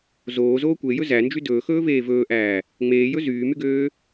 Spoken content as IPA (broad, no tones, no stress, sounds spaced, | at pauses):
z oː z oː kʷ e j ɵ z æ n d͡ʒ y d ɵː x ɵː v eː v ɵː ʔ æː | ŋ͡m eː j ɵ z yː m y ɡ øː